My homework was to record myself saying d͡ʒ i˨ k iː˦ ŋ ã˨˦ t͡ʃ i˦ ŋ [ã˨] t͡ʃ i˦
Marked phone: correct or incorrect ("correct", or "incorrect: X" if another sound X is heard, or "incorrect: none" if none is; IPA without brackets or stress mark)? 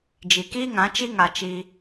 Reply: incorrect: a˨